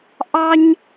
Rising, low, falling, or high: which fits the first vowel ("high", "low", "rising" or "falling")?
high